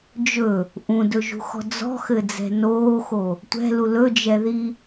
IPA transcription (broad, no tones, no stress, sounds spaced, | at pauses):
d͡ʒ ɵ | ʔ ũ d ɵ ʒ ṳ x ɔ̤ d͡z ɔ̤ x ɘ d͡z ɛ̤ n oː x o | tʷ ɛ̤ l u l ɵ d͡ʒ ɛ ð i